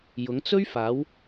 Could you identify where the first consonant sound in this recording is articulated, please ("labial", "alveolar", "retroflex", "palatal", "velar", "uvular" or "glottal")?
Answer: palatal